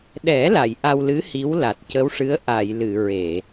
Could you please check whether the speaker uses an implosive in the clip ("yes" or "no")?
yes